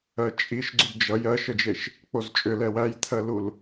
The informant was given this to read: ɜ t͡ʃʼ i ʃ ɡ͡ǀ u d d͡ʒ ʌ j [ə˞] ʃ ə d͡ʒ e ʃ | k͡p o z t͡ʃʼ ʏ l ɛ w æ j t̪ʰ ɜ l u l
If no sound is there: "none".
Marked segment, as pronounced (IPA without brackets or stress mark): ɜ